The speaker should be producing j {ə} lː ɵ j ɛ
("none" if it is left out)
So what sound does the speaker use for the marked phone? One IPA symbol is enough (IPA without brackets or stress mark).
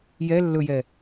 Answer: ɛ